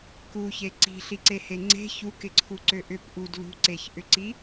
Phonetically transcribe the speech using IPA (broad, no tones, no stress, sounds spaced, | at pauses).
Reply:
k u ç e ǀ i̤ ɬ i ǀ e h e ŋ͡ǀ e̤ ç u k ɪ ǀʰ u ǀ ø ʔ ʏ p ʔ u d l ṳ ǀ e ç ʔ ʏ ǀ i